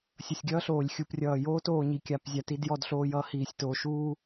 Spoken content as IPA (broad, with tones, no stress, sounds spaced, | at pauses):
sʲ ʌ˨ sʲ ɡʲ ʌː˦ ɬ oː˨ lʲ xʲ u˨ p rʲ ʌː˨ j oː˦ t oː˨ ɲ i˨ kʲ a˨ p zʲ a˦ t i˦ d j ɔ˦ d ɬ oː˦ j ʌː˦ h iː˨ sʲ t oː˨ ʃ uː˦